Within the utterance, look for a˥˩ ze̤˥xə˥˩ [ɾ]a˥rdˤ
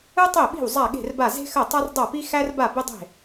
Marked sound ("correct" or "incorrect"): incorrect